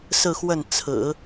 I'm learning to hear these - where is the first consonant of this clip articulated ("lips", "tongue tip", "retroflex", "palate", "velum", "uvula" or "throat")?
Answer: tongue tip